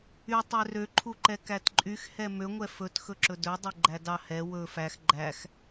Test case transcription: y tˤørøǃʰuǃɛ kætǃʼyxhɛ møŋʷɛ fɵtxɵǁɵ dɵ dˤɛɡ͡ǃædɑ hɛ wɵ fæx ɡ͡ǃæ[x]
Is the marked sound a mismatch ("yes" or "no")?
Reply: no